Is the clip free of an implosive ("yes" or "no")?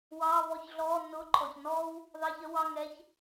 yes